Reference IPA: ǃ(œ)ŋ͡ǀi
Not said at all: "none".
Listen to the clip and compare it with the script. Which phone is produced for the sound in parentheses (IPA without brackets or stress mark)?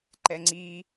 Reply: ɛ